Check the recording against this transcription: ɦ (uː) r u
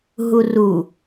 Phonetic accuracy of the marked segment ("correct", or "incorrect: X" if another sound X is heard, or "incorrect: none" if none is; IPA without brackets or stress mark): incorrect: u